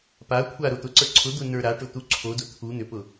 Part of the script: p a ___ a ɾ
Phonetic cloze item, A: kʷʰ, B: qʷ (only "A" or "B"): A